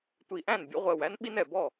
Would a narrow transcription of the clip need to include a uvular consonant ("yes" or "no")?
yes